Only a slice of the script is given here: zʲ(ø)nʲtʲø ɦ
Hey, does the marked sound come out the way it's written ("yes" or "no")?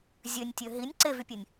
yes